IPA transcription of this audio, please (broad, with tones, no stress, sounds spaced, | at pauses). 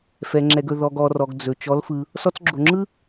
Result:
f ɛ˩ ŋ͡ǁ ɛ˩ ɡ ɵ˩ ð ɔ˩ ɡ ɔ˩ r ɔ˩ ɡ d͡z ɵ˩ t͡ʃ ɔ˩˧ l f ɯ˩ | s ɔ˧ t͡s ɡ͡ǁ o˩ ŋ͡ǁ ɯ˥